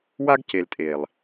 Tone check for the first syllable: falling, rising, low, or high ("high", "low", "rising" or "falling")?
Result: high